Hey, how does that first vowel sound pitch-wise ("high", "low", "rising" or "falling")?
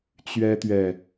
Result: high